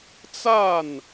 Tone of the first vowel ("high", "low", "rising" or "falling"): falling